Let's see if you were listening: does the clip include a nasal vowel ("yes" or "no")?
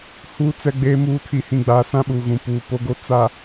yes